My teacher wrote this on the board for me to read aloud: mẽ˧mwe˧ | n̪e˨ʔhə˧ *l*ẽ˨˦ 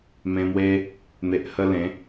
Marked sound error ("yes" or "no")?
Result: no